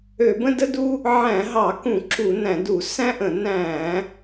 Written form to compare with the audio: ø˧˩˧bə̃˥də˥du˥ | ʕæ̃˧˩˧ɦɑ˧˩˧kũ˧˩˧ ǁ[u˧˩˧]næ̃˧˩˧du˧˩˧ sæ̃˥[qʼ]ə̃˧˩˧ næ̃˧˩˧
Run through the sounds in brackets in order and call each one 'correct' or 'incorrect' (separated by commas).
correct, incorrect